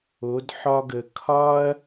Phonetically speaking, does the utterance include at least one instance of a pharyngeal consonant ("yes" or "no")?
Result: yes